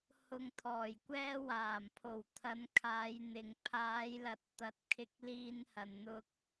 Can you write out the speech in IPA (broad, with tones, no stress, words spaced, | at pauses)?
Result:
hʊ˧ŋt̪ʰɔː˨˩jkʷɛː˥ waː˨˩mpʰo˨˩wt̪ʰɐ˨˧nkʰaː˨˧j n̪ɪ˨ŋ pʰaː˨˧jlɐ˨t̚t̪ɐ˨t̚ kʰɪ˧k̚liː˧n hɐ˨n n̪ʊ˧k̚